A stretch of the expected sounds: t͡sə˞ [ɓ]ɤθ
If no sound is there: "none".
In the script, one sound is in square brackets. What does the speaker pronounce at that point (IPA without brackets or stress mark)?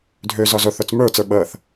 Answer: ɓ